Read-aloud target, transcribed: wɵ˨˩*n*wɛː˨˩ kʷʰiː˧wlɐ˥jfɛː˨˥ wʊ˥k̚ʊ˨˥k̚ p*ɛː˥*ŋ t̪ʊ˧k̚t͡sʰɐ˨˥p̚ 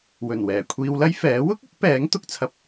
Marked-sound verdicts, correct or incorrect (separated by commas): correct, incorrect